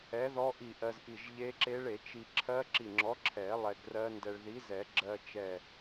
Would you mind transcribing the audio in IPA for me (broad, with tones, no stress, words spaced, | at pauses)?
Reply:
ɛ˨˥ðɔ˦˥ʔi˧˩ ʔɜ˧zʔi˧˩ʒ ʎe˦˥ǁe˦˥ɭ e˨˩˦t͡ʃi˧ ǁʰɜ˦˥ǁi˧˩ŋ͡ǁɔ˨˥ ǁʰɛ˨˩˦ lˠɛ˧ɡrɜ˦˥ndɛ˧ɭ ði˨˥zɛ˨˩˦ ɡ͡ǁɜ˧t͡ʃɛ˧˩